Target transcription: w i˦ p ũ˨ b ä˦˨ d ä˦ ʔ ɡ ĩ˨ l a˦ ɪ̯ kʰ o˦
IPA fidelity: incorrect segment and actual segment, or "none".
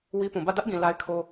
none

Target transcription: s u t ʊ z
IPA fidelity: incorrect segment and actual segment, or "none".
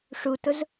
s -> ʂ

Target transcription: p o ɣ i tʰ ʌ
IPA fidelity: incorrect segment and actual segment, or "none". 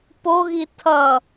none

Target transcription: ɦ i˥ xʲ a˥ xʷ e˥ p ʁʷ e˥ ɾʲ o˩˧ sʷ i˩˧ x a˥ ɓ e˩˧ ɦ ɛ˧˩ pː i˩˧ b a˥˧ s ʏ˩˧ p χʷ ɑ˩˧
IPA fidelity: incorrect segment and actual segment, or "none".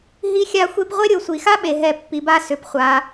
ɑ˩˧ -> a˩˧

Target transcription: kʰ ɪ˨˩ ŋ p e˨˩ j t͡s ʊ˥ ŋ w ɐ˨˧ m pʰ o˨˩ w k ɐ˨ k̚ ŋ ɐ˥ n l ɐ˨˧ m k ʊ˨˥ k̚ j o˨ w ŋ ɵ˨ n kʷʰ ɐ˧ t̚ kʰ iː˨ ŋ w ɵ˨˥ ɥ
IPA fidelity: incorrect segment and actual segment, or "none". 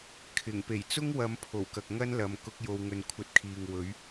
none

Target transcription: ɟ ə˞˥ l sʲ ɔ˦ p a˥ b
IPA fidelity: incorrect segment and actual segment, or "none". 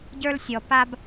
none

